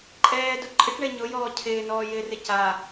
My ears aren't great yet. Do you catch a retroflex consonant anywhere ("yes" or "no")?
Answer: yes